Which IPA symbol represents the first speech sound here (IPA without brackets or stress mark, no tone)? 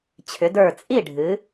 t͡ɕʰ